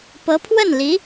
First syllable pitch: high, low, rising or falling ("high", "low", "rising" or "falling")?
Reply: rising